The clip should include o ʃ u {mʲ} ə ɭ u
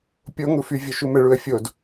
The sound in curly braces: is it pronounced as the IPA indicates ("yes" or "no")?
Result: no